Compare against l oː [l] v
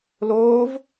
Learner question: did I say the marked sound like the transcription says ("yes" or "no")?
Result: no